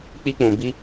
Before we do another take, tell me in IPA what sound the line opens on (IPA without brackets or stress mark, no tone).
k͡p